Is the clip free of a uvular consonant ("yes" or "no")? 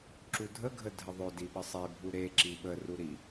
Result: yes